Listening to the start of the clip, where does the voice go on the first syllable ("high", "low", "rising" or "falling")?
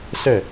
falling